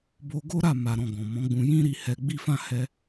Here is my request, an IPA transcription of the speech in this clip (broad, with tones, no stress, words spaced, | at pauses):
bo˧ɡo˦ ɾa˦˨ ma˨ɾɔ̃˨ ɡɔ̃˨mɔ̃˨˦ɡ͡bũ˧ jĩ˦ɾi˧ hɛ˧ɡ͡bi˦fã˦˨ hɛ˧